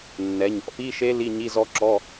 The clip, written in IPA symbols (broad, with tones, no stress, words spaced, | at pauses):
nːɛ˩˧ɲɔ̰˩˧pi˧˥˧ʃe˦˥ li˧˥˧ɲi˧˥˧zɔ˦˥ǁɔ˧˥˧